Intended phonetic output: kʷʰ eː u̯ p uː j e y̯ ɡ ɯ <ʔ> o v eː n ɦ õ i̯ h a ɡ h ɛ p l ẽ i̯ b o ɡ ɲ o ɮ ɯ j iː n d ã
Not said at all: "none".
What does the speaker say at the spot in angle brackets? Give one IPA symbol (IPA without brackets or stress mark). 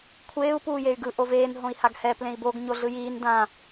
ʔ